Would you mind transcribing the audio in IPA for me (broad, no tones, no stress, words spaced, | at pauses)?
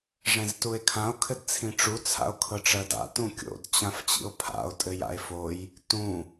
ʐɛ̃ztue̯kʰão̯ kʰɘdt͡sʰĩʈ͡ʂu t͡sʰa̰o̯kʰɤʈ͡ʂɜda̰ tũkʲo̰d t͡ɕãft͡ɕḭo̯pʰa̰o̯ tʼɘja̰e̯foj | tũ